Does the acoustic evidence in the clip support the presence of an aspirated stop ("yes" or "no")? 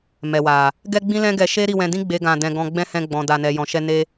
no